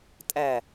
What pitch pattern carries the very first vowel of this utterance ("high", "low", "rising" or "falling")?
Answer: low